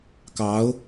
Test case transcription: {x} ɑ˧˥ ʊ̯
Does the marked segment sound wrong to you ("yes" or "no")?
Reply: yes